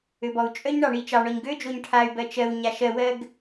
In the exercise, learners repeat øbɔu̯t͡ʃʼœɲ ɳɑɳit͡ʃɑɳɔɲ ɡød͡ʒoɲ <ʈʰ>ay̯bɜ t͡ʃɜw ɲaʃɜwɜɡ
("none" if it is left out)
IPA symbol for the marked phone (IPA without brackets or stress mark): ʈʰ